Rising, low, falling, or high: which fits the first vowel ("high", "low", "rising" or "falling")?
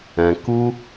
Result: low